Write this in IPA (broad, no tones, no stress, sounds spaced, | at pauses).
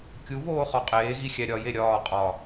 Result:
kʲ u β oː χ ɒ qʼ eː ɣ i xʲ æ ɾʲ ɒ j e ɾʲ ɒː qʼ ɒ